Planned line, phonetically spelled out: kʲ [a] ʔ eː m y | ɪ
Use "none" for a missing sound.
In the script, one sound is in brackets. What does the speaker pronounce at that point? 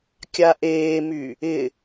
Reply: a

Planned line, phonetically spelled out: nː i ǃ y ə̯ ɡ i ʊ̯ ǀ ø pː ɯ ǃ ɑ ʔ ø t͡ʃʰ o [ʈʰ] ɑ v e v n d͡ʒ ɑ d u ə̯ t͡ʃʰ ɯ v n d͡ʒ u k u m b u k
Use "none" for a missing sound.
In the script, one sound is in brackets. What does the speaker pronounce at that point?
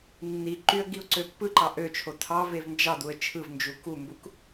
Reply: tʰ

